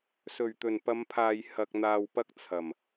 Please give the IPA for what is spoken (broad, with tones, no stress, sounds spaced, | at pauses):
s ɵ˨˩ ɥ t̪ ɵ˨˩ n p ɐ˨˧ m pʰ aː˨ j h ɐ˨ k̚ n̪ aː˨ w p ɐ˥ k̚ t͡sʰ ɐ˨˩ m